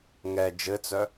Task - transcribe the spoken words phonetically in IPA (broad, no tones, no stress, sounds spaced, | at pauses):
ŋ ɛ d͡ʒ ɘ t͡s œ